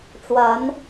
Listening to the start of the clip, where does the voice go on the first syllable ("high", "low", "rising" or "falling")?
rising